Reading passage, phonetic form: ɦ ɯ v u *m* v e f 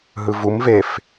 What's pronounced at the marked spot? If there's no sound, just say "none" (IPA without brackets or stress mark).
m